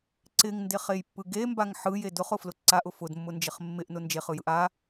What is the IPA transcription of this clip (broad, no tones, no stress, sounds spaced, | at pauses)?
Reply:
ǀ ɪ ŋ n d e χ e j pː ɯ ɡ e m b a ŋ ħ ɯ j e d ʊ χ ʊ f l ʊ ǀ a ʔ ʊ f ʊ d mː ʊ n d͡ʒ ɪ χ mː ɪ ʔ n ʊ n d͡ʒ e χ ɯ j ɯ ʔ a